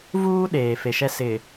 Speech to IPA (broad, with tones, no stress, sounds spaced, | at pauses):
v uː˦ ɗ eː˨ f e˨ ʃ ɛ˦ s ɪ˨